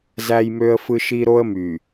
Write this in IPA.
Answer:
z æ˦ j m ø˦ ə̯ f ɯ˦ ʃ i˦ ɾ o˦ ə̯ m y˨

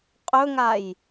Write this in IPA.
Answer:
qʼ ɵ ŋ a j

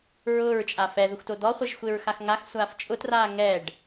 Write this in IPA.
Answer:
ɹ ʊː ɹ t͡ʃʼ a f ɛ ð ʊ xʷ t o d ɔ χʷ e ʒ xʷ e ɹ x a x ŋ a x sʷ aː f t͡ʃʼ ʊ t r aː ŋ ɛ ɖ

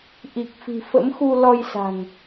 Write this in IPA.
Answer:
ʔ i˨˩ k̚ f i̤˨˩ f ə̰˧˥ m x u˧ l ɔ˧ j s a̤˨˩ ŋ

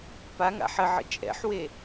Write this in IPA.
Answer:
p a ŋ a̰ ħ ə ʕ ə̰ t͡ʃʼ ɛ̰ ħ w e

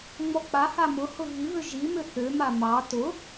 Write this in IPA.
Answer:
ŋ͡m ɔ k͡p a h a m ʊ h ʊ ɣ i β ʏ ʒ i m ʏ θ ʏ m a m ɑ t ʊ

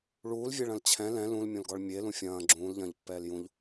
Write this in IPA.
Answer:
ɭ uː l vʲ e ɭ ɐ̃ l t͡ɕʰ ɛ̃ l ɛ̃ l ũ l mʲ õ l ɡ ɔ ɭ mʲ e l ũ fʲ ɐ̃ː ɡ͡ǁ ũː l ʎ ɐ̃ː ʎ pː ɛː l j ũ ʎ

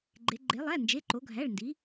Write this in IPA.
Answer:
ɡ͡ǃ e˩˧ ɡ͡ǃ e˩˧ lˠ æ˩˧˩ n d͡ʒ e˩˧˩ ǃ o˩˧ ɡʱ æ˩˧˩ ɭ n d i˩˧

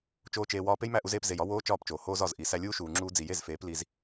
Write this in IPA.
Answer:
t͡ʃ oː˦ t͡ʃ eː˧ w ɒː˦ p e˦ j m æ˦˨ ʔ u˧ z eː˧ p z e˨ j ɒ˧ w oː˦ t͡ʃ ɒː˦˨ p t͡ʃ oː˨ h oː˧ z ɒ˨ z ʔ i˨ s æ˧ lʲ uː˦ ʃ uː˨ ŋ͡ǁ uː˧ d͡z i˨ j e˦˨ z f eː˨˦ p l i˧ z

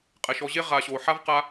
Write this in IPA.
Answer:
qʼ ɛ˩ ʃ ɔ˨ ʑ e˦ ʁ a˨ ɕ o˩ ħ a˥ v q a˦

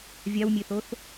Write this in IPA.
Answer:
vʲ a w mʲ e θ o θ

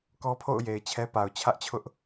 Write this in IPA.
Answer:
k ɔ˦ pʰ o̰˦˨ ʊ̯ j e˨ ɪ̯ t͡ɕʰ ɛ˦ p a˨ ʊ̯ t͡ɕʰ ä˦ ʔ t͡ɕʰ ʊ˦ ʔ

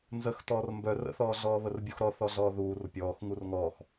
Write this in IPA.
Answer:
n z ə x t ɔː r m b œ r ə̰ θ ɔː ɮ ɔː β ə r bʲ u x ɾ ɔ θ ɔ ɮ ɔː ð uː r pʲ ɔː x ŋ u r ŋ ɔː x

